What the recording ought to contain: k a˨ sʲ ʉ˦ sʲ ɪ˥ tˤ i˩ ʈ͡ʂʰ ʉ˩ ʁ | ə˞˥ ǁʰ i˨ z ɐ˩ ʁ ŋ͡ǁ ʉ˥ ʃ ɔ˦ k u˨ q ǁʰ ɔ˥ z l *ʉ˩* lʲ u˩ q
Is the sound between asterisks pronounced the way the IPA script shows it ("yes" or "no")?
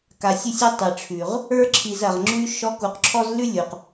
no